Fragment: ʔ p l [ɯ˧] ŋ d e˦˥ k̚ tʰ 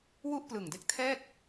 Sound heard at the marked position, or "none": ɯ˨˩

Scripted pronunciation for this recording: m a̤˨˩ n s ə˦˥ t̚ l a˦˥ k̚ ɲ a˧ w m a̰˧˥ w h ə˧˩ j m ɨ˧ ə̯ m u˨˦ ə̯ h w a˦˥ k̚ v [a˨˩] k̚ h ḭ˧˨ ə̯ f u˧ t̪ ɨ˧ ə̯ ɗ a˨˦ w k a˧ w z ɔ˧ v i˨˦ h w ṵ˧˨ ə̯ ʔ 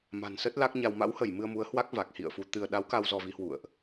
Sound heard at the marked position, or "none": a˨˩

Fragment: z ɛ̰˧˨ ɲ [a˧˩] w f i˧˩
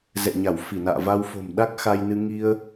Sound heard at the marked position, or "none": a˧˩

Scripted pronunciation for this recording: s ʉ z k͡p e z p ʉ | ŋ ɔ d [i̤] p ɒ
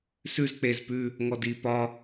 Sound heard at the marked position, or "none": i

